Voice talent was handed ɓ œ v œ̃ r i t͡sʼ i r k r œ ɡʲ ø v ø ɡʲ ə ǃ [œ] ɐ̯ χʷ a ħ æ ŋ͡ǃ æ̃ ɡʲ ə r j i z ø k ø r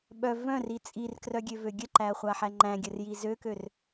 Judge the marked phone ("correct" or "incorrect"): incorrect